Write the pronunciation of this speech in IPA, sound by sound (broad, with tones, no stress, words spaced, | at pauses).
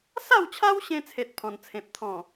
sa˥˧wt͡ɕʰa˦wɕẽ˧t͡sʰe˨t̚ pʰɔ̃˨˩nt͡sʰẽ˨p̚t̪ʰɔ̃˨˩